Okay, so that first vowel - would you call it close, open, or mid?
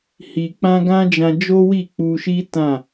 close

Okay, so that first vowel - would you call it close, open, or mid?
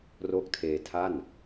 mid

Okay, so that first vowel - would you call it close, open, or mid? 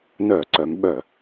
mid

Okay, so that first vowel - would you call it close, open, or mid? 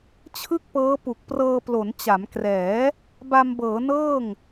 close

